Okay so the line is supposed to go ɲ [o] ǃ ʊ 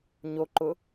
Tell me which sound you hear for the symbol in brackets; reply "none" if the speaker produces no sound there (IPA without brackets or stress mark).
o